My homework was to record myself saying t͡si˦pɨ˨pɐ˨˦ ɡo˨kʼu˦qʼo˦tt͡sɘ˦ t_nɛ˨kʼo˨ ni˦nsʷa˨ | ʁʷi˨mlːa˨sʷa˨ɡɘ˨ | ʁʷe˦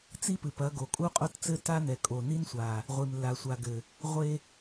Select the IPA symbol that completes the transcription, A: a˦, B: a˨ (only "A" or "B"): A